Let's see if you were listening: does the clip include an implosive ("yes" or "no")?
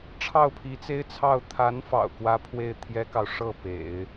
no